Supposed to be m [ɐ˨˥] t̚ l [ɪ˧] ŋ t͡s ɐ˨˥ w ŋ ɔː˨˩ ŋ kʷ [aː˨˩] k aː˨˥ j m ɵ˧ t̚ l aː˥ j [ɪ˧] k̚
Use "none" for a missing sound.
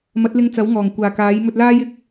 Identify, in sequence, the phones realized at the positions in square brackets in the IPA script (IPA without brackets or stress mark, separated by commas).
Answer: ɐ˨˥, ɪ˧, aː˨˩, ɪ˧